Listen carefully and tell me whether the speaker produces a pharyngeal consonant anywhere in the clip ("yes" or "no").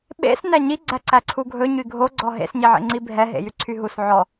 yes